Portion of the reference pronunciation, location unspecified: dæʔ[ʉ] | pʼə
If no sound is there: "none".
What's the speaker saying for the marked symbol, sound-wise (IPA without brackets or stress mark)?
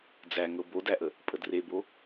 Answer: ə